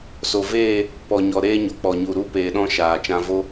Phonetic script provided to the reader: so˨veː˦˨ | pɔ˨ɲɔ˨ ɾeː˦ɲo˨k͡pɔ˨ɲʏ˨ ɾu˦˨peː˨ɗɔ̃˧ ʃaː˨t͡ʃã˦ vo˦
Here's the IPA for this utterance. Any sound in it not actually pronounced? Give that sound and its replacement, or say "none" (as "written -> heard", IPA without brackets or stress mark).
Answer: ʏ˨ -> u˨